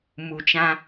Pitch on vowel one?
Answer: low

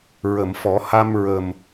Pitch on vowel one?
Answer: low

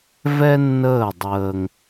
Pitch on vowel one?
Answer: high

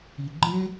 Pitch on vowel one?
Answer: low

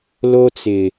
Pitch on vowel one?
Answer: high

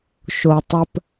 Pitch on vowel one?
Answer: low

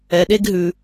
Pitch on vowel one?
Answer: low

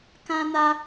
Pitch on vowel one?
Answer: high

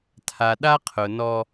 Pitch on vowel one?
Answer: low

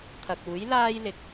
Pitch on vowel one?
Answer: low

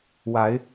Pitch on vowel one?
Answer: rising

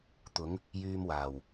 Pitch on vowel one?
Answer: rising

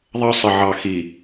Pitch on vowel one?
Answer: high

